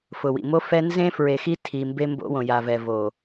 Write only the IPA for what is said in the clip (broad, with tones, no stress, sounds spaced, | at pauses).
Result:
f ʊ˨ w ḭ˨ m o˦ f ɛ˦ n z ẽ˦ f ɹ e˨ x i˦ tʰ i˨ m b e˦ m b o̰˦ w õ˨ j a˨ v ɛ˨ v o˨